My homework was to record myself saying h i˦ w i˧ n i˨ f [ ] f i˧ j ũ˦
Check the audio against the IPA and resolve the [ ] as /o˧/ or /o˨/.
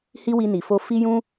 o˧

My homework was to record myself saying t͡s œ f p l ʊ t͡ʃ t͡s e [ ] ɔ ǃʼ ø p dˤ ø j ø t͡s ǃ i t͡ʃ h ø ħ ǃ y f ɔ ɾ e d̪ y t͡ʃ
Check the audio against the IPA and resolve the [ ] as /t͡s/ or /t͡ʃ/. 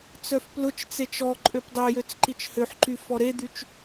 t͡ʃ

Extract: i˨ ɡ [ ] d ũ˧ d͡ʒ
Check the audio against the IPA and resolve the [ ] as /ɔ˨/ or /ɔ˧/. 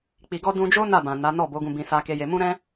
ɔ˧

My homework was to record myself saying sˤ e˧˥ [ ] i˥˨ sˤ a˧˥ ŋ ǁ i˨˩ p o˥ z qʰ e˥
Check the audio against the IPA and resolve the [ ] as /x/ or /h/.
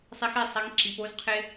x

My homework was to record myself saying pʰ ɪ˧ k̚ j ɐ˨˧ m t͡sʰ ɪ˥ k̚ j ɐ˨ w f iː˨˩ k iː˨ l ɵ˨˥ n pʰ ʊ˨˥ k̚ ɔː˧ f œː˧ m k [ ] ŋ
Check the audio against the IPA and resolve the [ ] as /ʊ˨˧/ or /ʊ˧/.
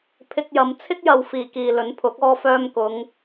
ʊ˨˧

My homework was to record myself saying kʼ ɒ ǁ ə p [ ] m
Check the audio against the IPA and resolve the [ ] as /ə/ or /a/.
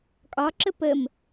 ə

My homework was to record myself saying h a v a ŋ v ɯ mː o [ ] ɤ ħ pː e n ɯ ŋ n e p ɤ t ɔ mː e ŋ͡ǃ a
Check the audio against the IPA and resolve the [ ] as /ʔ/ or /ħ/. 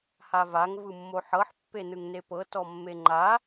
ħ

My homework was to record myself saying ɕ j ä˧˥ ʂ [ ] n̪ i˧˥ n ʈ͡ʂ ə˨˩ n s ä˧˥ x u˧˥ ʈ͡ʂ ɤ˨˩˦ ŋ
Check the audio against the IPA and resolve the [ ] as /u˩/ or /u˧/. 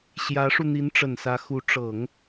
u˧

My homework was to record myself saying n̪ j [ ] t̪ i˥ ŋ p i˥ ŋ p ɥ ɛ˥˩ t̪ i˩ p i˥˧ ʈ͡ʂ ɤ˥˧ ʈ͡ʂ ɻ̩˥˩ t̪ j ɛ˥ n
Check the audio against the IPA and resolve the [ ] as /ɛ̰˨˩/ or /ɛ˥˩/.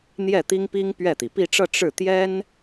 ɛ˥˩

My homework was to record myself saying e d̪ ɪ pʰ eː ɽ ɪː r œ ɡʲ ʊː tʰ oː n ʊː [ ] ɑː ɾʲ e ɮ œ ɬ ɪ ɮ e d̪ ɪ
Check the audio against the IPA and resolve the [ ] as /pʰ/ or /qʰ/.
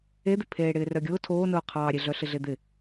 qʰ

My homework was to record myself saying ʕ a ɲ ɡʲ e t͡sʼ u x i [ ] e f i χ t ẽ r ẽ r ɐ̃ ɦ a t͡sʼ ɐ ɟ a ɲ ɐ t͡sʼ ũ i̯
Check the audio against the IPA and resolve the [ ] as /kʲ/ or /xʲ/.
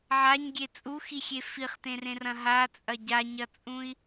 xʲ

